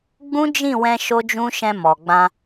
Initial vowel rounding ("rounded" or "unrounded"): rounded